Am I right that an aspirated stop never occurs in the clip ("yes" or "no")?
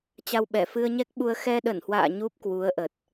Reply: yes